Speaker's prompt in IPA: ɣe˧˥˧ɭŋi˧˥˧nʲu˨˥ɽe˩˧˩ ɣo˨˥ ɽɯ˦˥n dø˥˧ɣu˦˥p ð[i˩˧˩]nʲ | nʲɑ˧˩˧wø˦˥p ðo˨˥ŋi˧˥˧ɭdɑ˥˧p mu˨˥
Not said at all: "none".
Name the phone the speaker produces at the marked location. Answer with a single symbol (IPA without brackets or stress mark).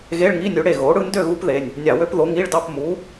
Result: e˩˧˩